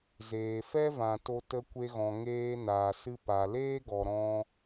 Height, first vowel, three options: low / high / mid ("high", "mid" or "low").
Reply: mid